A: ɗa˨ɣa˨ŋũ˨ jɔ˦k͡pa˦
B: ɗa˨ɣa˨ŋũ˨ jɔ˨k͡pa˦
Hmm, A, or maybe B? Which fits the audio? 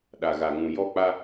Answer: A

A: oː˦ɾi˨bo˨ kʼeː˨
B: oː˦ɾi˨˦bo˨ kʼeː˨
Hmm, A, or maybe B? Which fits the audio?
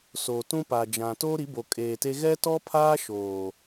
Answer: B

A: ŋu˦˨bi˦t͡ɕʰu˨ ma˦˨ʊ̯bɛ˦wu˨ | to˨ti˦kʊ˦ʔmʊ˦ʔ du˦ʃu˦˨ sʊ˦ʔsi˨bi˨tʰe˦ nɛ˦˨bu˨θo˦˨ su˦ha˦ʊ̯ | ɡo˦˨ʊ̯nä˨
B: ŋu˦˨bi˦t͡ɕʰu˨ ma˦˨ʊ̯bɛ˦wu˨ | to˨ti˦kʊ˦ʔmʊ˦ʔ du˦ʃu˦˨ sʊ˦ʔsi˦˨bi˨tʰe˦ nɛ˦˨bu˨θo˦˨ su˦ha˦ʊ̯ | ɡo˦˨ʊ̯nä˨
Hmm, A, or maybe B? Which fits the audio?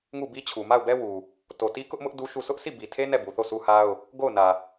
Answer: B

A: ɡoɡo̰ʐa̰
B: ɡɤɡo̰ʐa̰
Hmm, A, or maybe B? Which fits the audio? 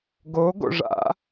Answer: A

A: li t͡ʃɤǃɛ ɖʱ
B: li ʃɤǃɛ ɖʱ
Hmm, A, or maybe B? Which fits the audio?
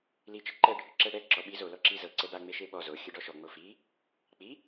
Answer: A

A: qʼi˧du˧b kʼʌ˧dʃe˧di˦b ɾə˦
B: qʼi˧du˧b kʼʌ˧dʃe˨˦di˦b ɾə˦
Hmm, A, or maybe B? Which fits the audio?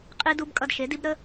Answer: B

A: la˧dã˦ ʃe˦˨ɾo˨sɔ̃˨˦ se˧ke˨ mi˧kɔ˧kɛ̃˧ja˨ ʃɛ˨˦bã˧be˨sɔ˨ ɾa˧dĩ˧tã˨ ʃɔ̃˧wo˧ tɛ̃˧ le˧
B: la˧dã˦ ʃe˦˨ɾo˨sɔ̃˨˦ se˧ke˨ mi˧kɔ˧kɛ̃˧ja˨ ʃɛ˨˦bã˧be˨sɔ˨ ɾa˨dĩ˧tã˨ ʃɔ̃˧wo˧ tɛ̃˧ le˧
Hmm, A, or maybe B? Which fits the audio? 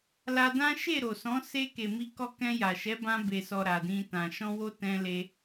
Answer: B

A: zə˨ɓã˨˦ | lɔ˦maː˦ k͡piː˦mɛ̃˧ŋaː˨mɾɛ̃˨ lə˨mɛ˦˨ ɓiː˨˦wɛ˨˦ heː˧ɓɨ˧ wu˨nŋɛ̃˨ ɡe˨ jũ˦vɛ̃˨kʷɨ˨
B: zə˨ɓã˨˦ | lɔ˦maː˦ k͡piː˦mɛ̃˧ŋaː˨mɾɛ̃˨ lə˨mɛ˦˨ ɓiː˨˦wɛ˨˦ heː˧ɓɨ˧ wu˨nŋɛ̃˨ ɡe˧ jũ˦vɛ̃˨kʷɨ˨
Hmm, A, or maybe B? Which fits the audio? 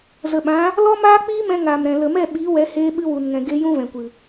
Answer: B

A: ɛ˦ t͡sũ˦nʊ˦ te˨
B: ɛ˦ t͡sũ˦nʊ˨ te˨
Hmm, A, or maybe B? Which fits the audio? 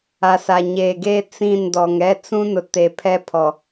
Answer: B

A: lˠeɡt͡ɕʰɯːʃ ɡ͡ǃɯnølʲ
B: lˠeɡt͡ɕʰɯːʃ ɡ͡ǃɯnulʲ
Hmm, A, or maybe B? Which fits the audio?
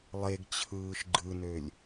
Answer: A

